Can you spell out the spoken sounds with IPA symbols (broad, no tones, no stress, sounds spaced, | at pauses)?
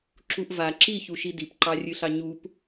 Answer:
ǁ u ʔ v a ǁ i ç u ʃ i d i p ǃ ɑ rʲ ɨ ɬ ɑ ɲ u p